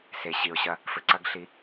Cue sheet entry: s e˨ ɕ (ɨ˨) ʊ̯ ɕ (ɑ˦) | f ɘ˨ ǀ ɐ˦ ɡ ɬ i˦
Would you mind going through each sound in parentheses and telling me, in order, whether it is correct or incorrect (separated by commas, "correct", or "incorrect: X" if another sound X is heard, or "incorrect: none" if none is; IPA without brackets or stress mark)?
incorrect: i˨, incorrect: ɐ˦